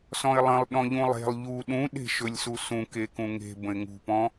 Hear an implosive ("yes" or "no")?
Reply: yes